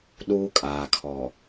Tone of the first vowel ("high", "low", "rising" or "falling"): high